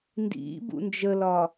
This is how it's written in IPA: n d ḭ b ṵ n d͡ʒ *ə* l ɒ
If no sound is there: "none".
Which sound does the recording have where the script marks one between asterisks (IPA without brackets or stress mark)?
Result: ə